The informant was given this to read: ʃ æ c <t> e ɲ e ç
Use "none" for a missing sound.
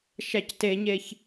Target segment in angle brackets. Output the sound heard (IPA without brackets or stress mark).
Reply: t